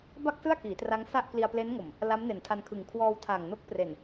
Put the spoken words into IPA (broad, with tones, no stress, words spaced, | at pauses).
ba˥˩k̚sɯ˥˩a̯kiː˩˦tra˦˥ŋ sa˥˩ʔ kli˧a̯ple˦˥nŋo˨˩m | la˦˥mne˨˩ntʰa˧nkʰɯ˨˩ŋ kʰwɔː˧wtʰa˨˩ŋ no˦˥k̚pre˨˩n